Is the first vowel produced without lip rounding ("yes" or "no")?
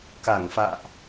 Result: yes